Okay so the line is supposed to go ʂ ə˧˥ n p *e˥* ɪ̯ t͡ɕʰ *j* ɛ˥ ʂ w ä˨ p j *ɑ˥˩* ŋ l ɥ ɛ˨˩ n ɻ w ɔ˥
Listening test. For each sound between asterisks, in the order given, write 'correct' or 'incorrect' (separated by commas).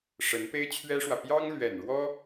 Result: correct, incorrect, incorrect